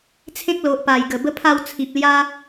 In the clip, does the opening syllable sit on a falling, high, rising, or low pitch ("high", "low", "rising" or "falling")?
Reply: high